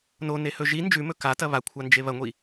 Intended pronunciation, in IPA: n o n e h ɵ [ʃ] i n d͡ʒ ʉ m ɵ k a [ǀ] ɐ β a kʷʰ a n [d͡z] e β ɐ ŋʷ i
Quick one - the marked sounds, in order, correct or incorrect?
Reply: incorrect, incorrect, incorrect

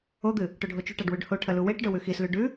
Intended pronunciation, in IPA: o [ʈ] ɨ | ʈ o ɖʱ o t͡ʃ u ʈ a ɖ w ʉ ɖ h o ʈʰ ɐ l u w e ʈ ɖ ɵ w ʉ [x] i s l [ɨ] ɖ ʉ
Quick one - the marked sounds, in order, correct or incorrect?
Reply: incorrect, correct, incorrect

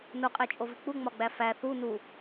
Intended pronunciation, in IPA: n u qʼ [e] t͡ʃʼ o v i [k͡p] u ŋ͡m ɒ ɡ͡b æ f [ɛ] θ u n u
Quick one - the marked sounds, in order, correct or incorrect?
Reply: correct, correct, incorrect

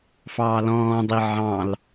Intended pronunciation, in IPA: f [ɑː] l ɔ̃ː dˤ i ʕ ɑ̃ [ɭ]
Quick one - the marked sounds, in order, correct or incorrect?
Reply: correct, incorrect

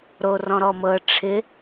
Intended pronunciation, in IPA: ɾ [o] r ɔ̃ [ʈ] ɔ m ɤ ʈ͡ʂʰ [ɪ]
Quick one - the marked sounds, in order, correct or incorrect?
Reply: correct, incorrect, correct

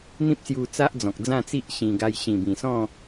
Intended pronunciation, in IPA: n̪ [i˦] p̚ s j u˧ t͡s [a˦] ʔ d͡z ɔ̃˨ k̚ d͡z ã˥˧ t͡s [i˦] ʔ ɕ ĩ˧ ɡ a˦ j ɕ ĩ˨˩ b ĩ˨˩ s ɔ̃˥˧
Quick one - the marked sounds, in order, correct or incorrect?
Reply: incorrect, correct, correct

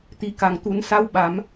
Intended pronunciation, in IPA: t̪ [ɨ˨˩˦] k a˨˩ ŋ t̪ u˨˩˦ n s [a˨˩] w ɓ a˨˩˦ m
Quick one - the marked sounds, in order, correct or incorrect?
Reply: incorrect, incorrect

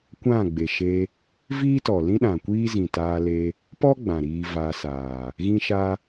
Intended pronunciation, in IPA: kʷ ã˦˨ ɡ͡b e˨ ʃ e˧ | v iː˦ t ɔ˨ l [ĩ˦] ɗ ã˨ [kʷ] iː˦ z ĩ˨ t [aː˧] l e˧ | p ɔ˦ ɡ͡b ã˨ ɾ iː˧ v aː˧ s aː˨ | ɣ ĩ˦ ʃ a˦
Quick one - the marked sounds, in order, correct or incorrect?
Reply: correct, correct, correct

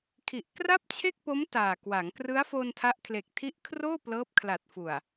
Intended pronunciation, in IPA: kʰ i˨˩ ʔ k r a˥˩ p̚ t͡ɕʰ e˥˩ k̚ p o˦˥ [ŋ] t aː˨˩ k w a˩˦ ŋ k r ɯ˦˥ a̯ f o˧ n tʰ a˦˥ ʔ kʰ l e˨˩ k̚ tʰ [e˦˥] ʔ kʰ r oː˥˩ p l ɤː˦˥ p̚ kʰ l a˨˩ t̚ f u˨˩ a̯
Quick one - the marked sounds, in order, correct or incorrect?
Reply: incorrect, incorrect

